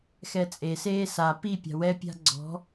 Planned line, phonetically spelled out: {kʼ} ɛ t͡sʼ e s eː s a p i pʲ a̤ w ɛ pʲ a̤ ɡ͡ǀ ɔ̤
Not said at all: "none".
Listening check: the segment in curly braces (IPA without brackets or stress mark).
x